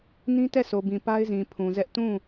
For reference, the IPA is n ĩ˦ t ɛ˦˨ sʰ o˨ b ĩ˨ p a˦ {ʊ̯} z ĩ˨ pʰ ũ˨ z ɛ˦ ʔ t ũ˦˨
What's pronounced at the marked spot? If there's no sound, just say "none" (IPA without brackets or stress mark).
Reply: ɪ̯